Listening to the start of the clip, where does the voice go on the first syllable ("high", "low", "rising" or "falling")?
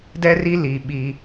high